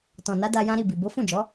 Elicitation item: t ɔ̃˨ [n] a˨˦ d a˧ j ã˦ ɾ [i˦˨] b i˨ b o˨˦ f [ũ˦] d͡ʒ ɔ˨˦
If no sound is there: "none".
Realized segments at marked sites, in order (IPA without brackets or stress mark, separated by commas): n, i˦˨, ũ˦˨